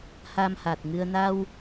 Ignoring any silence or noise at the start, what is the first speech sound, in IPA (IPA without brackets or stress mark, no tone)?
h